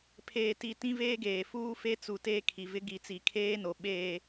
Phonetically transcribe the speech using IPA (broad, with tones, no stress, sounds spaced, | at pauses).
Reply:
pʰ eː˨ t i˨ t ĩ˦ v eː˦ ɡ eː˨ f uː˦ f e˦ t͡s u˨ t eː˦ kʰ i˨ v ɪ˦ ɡ i˨˦ t͡s i˨ kʰ eː˦ n o˨ ɓ eː˨